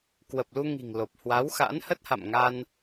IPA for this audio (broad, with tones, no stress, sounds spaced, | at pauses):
k w ə˨˩ p̚ l u˧ ŋ i̤˨˩ ŋ l o˨˩ p̚ h w a˨˦ w x a̰˧˥ n h ə˦˥ t̚ h a̰˧˨ m ŋ a˧ n